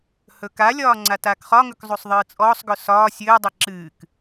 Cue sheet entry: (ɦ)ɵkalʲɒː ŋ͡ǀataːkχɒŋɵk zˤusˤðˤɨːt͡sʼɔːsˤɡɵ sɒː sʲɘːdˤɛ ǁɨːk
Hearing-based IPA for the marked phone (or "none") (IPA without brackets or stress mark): h